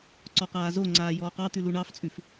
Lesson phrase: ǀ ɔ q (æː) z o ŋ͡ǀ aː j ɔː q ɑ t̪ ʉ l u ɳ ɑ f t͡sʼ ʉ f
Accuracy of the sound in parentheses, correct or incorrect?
incorrect